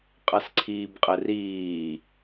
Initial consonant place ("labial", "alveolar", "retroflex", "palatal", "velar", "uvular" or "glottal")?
uvular